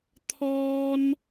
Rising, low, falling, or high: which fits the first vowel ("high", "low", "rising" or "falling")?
high